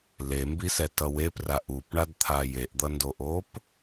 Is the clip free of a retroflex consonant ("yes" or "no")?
no